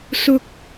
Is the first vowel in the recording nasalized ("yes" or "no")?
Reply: no